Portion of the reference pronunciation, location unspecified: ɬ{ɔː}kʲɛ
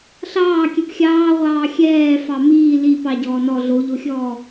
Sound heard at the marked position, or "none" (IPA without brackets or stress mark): ɑː